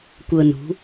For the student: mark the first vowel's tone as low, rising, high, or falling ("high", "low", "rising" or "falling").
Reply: high